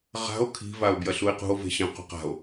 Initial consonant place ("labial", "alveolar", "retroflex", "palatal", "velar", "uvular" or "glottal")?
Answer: uvular